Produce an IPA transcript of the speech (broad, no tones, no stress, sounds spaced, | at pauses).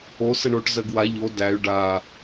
o s ə ɳ o ʈ z ɜ ɡ w a ʎ o d æ y̯ ɖ a